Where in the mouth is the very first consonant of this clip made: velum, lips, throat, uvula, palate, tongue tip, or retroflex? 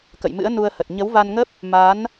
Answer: velum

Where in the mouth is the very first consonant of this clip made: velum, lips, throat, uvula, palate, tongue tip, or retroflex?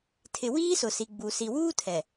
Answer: tongue tip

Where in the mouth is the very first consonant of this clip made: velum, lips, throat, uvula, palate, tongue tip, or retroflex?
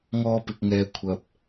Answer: velum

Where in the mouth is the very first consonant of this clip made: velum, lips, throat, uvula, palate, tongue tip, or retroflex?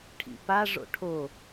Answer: retroflex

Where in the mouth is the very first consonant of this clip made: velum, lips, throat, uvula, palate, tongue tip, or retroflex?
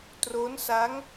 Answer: tongue tip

